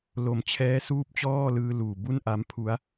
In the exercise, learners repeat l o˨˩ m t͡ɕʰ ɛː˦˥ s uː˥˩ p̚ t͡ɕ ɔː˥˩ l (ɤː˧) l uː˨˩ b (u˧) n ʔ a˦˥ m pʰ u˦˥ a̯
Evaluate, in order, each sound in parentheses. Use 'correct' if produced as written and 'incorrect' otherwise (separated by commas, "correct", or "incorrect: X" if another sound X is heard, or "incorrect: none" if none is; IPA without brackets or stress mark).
incorrect: ɯː˧, incorrect: u˥˩